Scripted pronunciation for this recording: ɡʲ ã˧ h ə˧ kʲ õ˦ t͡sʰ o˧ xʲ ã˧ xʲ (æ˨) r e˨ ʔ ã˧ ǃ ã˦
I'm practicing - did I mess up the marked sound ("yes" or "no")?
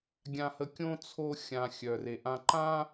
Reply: yes